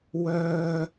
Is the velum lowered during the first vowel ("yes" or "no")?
no